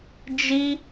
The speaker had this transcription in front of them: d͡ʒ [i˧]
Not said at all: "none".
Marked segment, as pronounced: i˧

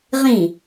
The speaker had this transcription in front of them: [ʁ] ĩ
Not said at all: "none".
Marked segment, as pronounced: ʁ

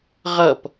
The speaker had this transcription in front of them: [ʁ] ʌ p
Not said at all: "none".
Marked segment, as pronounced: ʁ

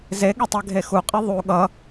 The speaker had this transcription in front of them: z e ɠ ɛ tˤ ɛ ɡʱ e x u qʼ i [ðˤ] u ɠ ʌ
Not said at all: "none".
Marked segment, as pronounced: ðˤ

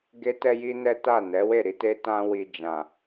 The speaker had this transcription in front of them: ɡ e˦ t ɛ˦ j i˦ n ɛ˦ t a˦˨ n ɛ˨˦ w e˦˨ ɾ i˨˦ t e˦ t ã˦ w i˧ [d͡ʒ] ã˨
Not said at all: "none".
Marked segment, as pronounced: d͡ʒ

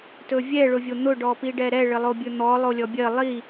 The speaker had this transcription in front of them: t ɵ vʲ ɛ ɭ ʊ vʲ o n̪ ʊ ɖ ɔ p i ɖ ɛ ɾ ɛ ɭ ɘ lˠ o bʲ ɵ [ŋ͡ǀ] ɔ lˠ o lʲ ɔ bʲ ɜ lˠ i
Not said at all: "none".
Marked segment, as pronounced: n̪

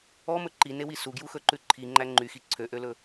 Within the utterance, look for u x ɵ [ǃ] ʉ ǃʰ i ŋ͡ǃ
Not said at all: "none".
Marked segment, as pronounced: ǃ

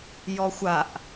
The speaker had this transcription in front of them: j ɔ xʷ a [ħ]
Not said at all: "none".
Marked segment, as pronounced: ʔ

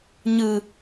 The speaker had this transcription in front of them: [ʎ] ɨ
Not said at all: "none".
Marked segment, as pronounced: ɲ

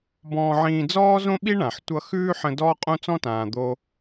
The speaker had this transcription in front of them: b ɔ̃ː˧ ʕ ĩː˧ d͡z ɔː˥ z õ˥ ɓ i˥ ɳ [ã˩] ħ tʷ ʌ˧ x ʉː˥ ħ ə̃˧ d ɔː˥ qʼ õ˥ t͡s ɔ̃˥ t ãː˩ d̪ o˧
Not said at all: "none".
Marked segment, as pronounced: ã˩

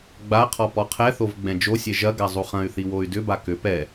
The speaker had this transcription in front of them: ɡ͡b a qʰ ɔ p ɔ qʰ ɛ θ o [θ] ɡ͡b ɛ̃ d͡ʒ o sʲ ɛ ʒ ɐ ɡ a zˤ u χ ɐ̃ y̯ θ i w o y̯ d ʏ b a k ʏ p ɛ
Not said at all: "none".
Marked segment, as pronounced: v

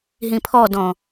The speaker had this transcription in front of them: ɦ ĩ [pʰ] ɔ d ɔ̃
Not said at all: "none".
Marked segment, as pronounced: pʰ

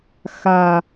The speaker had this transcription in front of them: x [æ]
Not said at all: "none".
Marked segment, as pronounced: a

